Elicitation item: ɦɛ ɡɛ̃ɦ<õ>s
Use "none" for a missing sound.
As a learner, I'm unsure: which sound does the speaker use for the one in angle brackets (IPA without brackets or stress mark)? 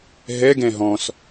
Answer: ɔ̃